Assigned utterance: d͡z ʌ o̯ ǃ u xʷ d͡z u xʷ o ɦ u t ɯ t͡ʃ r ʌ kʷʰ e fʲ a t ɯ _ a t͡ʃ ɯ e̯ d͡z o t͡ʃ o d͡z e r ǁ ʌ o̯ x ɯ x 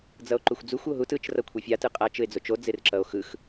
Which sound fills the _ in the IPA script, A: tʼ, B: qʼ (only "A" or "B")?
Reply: B